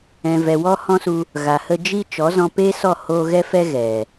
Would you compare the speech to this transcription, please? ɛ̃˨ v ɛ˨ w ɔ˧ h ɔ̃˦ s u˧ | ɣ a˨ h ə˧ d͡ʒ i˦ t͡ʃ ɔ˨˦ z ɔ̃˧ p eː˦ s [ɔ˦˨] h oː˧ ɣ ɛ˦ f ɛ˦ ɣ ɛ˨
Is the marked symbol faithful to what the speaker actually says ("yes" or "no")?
yes